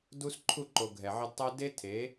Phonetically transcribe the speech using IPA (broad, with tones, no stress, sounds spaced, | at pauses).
d u˦ s ǃʰ u˦˨ ǃ o˨ ɡʱ ɛ˨ ʕ ɪ˧ d tˤ ɛ˦ d e˦ tʰ e˨˦